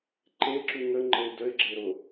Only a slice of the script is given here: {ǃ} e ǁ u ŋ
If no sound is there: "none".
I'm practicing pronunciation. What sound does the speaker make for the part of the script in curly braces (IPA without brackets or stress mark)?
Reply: ǃ